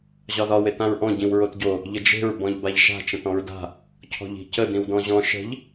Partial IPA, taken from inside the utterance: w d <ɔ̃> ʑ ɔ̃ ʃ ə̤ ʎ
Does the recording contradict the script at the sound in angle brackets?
no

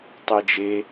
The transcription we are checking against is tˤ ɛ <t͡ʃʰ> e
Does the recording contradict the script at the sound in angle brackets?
yes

